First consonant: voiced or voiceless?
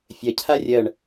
voiceless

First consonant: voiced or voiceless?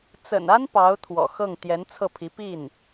voiceless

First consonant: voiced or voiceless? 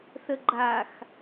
voiceless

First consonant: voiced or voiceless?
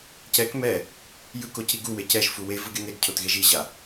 voiceless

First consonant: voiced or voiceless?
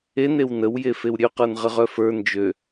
voiced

